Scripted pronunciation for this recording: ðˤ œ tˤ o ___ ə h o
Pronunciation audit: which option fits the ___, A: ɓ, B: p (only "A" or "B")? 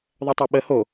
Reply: A